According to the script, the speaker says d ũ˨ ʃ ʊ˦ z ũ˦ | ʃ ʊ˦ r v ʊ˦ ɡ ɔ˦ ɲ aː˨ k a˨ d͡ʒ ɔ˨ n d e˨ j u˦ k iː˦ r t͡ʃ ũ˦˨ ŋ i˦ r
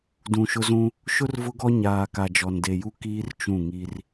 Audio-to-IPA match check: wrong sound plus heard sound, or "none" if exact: none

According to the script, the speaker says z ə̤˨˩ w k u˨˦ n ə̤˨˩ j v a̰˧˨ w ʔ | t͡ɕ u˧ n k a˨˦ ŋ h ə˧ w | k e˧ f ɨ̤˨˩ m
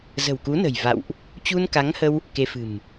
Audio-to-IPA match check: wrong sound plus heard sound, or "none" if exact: none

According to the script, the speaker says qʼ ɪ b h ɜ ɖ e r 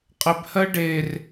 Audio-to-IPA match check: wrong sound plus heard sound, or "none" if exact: none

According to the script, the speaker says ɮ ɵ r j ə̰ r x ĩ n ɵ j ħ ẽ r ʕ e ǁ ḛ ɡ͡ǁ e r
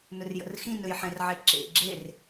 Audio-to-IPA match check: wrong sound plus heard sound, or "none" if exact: ɮ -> n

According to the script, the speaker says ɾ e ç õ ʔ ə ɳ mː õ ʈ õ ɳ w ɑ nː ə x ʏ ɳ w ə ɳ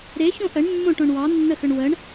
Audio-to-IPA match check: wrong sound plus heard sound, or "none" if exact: none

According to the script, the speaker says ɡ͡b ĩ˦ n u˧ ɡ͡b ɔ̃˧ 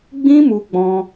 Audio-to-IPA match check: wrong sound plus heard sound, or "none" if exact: n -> m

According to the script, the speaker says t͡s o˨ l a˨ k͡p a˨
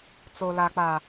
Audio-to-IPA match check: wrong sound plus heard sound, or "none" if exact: none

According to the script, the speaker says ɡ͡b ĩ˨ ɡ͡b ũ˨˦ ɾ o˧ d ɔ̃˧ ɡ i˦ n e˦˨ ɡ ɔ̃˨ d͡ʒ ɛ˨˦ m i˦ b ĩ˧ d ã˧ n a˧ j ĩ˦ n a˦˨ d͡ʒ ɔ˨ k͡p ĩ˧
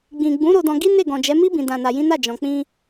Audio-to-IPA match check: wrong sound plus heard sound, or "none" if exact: ɔ˨ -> ɔ̃˨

